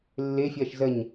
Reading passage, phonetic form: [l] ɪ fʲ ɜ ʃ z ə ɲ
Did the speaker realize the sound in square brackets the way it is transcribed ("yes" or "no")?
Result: no